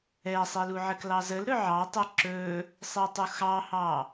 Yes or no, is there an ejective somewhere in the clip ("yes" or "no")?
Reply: no